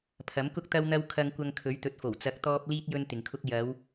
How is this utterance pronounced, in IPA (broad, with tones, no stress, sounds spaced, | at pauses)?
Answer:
pʰ ɐ˨˥ m k ʊ˥ k̚ t̪ ɐ˧ w n̪ ɐ˧ w kʰ ɐ˧ ŋ kʷ ɐ˧ ŋ kʰ ɵ˨˥ ɥ t̪ ɵ˨ t̚ f o˨˩ w t͡s ɐ˨˥ k̚ t̪ ɔː˧ p̚ l iː˥ t̚ j ɵ˧ n t̪ ɪ˨ ŋ kʰ ʊ˥ k̚ j ɐ˨˧ w